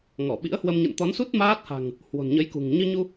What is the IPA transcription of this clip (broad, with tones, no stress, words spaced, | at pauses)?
ŋɔ˧˩ɓḭ˧˥ə̯hwə˧m ɲə̰˧˨nt̪ɔ˨˦nsu˦˥t̚ maː˦˥t̚ha̤˨˩ŋ | hwo̤˨˩nɲə˨˦jkṳ˨˩ŋ ɲɨ˧ɲu˧